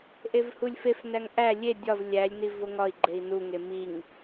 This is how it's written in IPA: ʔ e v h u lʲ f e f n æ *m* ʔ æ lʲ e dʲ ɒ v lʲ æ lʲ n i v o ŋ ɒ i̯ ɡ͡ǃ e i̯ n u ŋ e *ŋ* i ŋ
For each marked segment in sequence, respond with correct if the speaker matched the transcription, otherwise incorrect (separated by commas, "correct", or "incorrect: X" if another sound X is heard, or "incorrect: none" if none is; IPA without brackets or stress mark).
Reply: incorrect: ŋ, incorrect: m